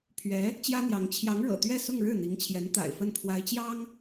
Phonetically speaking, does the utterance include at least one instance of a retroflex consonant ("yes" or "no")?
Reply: yes